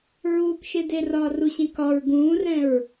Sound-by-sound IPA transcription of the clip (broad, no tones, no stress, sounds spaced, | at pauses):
ɹ uː k ʃ e d e r ɒː r u ɕ ẽ k ɒ ɹ ɡ ũː r ɛ̃ ɹ